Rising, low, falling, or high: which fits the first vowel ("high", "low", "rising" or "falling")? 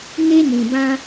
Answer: high